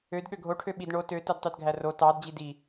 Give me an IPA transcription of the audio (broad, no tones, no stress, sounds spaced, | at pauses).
ø d ɠ ø ɡʱ o ʈʰ ø ɓ i d ɳ o t ø t ɯ d tˤ y d ɡʱ æ r o t ɑ d d͡ʑ i d i